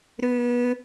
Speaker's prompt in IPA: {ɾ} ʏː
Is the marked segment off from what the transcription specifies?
no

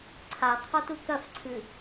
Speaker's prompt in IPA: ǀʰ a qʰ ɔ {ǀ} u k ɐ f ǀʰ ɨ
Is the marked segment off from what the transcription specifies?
yes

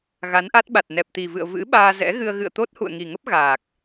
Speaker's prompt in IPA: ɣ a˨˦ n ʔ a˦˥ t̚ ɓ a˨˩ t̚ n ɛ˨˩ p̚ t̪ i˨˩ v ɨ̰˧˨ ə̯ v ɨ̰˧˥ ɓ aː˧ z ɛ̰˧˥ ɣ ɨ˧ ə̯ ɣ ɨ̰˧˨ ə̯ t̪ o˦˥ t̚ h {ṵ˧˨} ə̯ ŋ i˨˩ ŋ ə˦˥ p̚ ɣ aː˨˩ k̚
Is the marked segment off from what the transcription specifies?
no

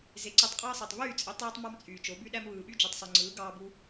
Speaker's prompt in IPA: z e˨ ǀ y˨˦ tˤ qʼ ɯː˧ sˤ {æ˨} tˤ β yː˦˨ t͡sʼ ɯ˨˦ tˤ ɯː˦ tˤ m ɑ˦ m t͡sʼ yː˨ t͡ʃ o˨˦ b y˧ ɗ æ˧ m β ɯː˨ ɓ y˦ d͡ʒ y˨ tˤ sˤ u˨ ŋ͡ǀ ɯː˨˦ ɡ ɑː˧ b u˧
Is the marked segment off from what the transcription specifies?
no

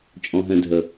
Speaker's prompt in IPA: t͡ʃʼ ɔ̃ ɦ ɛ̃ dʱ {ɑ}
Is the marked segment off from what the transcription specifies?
yes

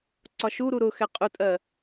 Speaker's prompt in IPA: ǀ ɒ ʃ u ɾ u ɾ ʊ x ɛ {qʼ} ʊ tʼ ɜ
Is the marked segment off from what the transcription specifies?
no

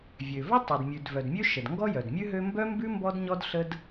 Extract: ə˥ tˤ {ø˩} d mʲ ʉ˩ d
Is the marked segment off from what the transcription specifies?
no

